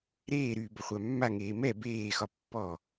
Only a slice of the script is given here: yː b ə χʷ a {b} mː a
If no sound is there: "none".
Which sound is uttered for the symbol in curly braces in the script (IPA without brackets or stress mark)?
none